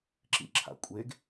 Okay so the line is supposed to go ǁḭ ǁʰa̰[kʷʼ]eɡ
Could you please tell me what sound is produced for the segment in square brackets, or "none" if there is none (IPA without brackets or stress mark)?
kʷʼ